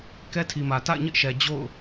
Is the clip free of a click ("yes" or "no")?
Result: yes